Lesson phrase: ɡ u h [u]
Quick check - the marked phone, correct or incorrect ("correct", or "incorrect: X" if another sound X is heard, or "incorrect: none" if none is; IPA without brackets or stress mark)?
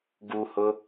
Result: incorrect: ʊ